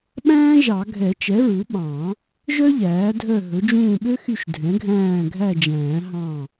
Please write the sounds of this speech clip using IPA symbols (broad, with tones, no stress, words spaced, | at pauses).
ɓæ̃ː˥ʒɑ˨˩˦ ɡʱɛ˨˩˦t͡ʃɛ˩˥ɹu˩˥ɓɑ̃˨˩˦ | ʒœ˥ʎæː˩˥dʱœ˦˨ ɦɵ˩˥d͡ʒũː˦˨ɓø˥xy˦˨ʃ dʱɛ̃˩˥ɡʱæ̃ː˦˨ɡʱæ˦˨d͡ʒæ̃ː˨˩˦ ɦɑ̃˦˨